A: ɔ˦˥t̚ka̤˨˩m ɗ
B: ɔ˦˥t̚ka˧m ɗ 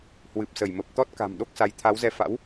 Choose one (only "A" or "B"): A